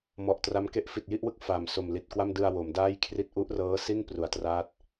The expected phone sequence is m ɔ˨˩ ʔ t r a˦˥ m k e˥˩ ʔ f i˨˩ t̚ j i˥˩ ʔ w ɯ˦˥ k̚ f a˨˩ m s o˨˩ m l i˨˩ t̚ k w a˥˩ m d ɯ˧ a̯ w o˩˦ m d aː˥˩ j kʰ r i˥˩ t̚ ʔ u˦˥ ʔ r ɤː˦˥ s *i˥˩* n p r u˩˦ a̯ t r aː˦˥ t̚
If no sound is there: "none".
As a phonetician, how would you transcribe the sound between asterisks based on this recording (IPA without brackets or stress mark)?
i˥˩